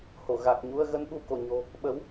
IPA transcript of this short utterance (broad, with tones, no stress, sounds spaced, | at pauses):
h o˧˩ ɣ a˨˩ k̚ ɲ u˧ ə̯ ɣ ə˧ n ɓ u˧ k o˧˩ ɲ o̤˨˩ | ɓ ə˨˦ w